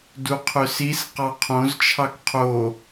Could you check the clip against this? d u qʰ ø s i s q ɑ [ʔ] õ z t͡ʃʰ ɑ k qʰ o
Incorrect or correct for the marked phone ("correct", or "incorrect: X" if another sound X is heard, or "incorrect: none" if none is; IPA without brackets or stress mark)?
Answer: incorrect: qʰ